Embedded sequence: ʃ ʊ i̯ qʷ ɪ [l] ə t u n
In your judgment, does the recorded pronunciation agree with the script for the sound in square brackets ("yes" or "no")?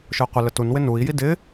yes